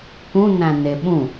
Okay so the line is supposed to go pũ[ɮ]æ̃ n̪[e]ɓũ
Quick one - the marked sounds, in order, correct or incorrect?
incorrect, correct

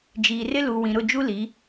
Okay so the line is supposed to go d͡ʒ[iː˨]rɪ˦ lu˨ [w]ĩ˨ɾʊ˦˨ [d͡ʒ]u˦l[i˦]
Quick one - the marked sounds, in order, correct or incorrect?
correct, correct, correct, incorrect

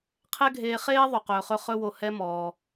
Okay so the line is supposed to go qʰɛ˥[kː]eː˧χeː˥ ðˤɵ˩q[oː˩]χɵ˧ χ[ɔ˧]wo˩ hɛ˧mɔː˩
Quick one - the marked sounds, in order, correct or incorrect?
incorrect, incorrect, incorrect

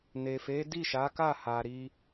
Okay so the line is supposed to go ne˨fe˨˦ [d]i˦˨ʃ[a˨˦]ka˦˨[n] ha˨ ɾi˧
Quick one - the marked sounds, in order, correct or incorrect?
correct, correct, incorrect

